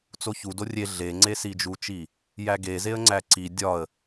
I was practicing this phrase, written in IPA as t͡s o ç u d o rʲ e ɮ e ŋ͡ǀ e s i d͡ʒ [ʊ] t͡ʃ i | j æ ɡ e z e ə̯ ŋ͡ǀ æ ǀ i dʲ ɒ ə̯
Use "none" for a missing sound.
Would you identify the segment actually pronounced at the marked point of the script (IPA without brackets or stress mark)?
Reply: u